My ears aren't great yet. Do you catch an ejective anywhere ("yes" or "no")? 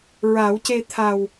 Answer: no